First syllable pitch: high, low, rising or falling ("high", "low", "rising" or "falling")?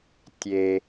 low